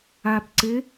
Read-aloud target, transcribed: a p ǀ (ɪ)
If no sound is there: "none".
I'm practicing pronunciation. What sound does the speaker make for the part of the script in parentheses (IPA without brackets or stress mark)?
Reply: ɪ